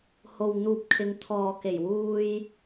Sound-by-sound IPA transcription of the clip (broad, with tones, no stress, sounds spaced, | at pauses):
h o˨ w n̪ uː˨ p̚ kʰ ɪ˨˧ ŋ t̪ʰ ɔː˨ k e˨˩ j w uː˧ j